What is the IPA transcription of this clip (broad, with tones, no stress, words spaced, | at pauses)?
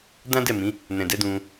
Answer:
dã˦dɛ˦˨mĩ˨˦ | nɛ̃˨dɛ˨˦dũ˧